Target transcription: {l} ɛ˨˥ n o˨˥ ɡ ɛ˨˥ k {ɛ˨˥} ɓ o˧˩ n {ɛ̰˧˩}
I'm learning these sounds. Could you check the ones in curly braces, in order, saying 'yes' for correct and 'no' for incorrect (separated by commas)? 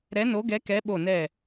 no, yes, no